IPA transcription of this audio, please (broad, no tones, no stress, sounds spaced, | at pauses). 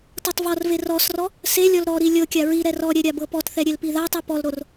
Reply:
t ɤ tˤ v ɔ r v e r ɔ s r ɔ | s e lʲ ɔ l ɾ ɔ ɾ i lʲ ɤ kʲ a ɹ i ɾ ɛ r ɔ ɾʲ ɛ ɾʲ a b ɤ p ɔ t θ ɛ ɾʲ e l p i ð a tˤ i p ɔ l ɾ o r